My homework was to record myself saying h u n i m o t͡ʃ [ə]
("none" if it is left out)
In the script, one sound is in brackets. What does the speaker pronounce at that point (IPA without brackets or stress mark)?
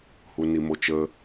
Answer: ə